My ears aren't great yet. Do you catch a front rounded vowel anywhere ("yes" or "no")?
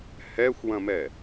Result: no